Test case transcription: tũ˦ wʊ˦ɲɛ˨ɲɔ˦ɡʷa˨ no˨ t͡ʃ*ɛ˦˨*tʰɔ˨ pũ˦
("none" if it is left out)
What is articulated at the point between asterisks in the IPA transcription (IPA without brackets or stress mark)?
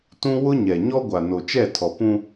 ɛ˦˨